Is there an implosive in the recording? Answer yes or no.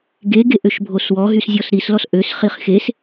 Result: no